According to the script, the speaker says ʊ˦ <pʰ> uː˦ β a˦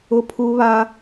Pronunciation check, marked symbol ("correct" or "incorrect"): correct